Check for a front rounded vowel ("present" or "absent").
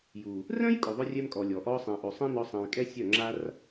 present